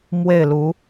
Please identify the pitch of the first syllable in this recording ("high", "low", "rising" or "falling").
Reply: falling